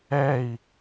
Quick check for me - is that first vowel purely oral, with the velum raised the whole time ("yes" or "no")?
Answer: yes